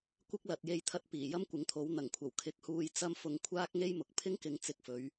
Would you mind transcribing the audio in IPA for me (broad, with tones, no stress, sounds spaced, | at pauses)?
kʷ ɪ˥ k̚ l ɐ˨ t̚ j e˧ j t̪ʰ ɐ˧ t̚ p iː˨˩ j ɐ˥ m kʷ ɪ˨˧ ŋ t̪ʰ o˨˥ w n̪ ɐ˨˩ ŋ kʷʰ ɐ˨˩ w kʰ ɪ˧ k̚ h uː˧ j t͡s ɐ˥ m f ʊ˧ ŋ kʷʰ aː˥ k̚ ŋ e˥ j m ʊ˨ k̚ pʰ ɪ˥ ŋ k ɪ˨ ŋ t͡s ɪ˧ k̚ f ɵ˨˧ ɥ